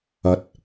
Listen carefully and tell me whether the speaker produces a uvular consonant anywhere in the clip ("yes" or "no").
no